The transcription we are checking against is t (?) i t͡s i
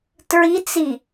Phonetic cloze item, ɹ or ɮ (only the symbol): ɹ